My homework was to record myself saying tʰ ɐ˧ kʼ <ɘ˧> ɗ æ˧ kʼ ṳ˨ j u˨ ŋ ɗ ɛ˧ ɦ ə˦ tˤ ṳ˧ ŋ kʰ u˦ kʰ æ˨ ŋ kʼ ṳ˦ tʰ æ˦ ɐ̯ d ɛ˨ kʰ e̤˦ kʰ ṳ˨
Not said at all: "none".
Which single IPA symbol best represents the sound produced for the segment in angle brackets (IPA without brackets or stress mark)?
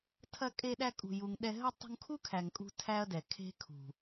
e˧